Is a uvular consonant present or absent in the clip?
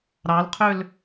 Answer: present